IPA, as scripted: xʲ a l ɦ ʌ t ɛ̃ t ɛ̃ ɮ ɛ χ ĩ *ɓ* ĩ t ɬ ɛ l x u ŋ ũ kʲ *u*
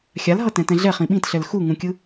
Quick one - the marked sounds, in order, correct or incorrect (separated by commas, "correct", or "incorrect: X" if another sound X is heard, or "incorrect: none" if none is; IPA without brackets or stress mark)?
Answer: correct, incorrect: ɯ